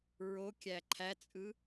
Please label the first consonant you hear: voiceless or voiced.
voiced